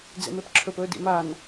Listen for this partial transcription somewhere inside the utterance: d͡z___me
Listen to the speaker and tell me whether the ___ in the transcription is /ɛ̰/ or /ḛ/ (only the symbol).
ḛ